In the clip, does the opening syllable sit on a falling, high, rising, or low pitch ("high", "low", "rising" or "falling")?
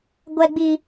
high